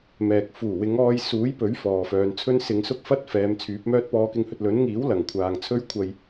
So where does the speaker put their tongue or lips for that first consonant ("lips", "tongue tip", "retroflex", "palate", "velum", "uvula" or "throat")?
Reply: lips